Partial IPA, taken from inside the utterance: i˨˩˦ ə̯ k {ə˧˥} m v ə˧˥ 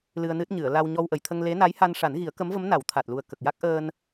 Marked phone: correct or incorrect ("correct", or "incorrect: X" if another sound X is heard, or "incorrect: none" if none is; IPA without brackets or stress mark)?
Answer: correct